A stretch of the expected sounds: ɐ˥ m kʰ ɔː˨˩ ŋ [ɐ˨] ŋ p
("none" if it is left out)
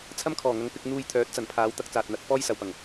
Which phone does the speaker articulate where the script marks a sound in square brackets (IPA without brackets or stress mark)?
ɐ˨˧